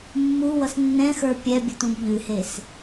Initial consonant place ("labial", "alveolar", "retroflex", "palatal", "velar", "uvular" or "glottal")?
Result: labial